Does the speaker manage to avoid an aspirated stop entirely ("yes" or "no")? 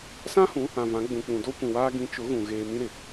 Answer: yes